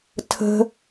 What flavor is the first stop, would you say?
aspirated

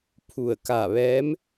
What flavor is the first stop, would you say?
aspirated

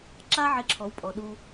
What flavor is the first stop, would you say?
click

